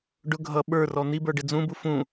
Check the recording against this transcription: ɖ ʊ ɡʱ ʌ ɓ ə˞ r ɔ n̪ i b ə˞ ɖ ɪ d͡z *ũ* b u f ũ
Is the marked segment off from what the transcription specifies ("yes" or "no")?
no